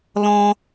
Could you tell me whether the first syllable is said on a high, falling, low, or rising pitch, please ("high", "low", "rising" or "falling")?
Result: high